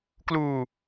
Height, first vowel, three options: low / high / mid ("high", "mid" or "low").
high